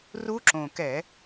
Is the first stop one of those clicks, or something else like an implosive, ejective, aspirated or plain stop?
click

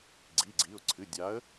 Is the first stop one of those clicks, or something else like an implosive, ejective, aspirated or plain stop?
click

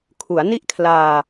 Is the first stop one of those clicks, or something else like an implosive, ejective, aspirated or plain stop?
aspirated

